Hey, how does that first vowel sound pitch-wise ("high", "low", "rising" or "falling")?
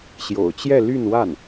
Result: low